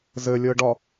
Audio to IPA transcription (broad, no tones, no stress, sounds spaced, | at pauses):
z ɘ lʲ ɤ ɖ ɒ